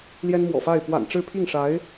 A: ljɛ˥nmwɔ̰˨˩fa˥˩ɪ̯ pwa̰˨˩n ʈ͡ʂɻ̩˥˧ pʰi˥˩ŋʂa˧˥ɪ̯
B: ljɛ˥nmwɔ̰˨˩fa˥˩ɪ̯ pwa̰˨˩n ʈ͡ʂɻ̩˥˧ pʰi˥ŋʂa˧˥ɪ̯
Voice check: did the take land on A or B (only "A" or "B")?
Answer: A